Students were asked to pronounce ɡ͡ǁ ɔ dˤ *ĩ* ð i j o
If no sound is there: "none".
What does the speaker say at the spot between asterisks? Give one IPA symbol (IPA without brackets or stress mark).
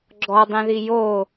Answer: ĩ